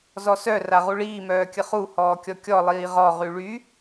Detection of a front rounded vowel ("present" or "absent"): present